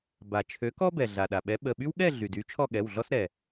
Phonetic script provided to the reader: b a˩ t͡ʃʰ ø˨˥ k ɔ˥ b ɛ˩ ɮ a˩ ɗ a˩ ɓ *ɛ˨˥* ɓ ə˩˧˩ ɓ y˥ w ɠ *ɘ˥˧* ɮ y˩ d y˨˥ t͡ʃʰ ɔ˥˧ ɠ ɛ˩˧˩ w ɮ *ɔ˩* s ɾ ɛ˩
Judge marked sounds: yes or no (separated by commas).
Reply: yes, no, no